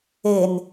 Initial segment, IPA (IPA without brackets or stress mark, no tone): e